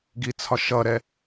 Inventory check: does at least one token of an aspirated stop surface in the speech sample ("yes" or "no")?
yes